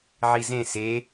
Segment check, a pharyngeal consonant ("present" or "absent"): present